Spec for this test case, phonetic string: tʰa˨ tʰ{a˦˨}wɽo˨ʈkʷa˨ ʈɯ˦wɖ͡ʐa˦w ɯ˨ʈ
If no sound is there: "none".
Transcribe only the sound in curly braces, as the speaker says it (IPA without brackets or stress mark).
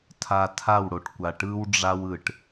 a˦˨